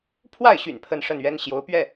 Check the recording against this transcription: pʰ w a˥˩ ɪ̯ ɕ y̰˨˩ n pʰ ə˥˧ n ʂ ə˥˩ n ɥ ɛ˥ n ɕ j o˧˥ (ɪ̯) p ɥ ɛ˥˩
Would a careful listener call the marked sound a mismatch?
yes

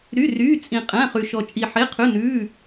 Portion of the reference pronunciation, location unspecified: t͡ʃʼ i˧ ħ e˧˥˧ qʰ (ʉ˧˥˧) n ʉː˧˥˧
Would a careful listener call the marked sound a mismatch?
no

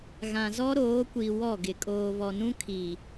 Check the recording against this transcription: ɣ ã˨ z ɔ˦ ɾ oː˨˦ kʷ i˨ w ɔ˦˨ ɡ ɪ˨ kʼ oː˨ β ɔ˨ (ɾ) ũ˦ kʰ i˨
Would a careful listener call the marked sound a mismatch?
yes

